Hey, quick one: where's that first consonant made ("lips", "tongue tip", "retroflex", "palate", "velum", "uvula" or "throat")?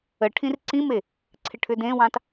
retroflex